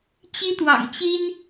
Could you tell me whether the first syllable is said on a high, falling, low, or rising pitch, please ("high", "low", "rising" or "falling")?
high